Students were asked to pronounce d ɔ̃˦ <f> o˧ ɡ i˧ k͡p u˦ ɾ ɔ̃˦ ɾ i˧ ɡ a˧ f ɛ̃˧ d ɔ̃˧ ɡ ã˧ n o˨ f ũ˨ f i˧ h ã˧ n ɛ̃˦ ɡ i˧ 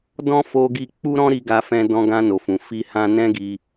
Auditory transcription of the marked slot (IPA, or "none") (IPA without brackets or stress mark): f